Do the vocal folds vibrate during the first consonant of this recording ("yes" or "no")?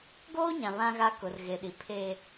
yes